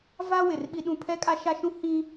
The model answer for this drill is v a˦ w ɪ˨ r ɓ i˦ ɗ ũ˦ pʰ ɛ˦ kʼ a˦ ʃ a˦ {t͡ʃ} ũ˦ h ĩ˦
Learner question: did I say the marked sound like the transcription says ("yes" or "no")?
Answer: no